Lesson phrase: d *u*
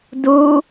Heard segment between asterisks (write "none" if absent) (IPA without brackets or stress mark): u